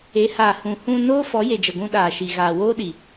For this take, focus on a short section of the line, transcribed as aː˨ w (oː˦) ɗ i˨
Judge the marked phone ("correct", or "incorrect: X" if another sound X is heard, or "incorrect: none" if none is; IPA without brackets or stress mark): correct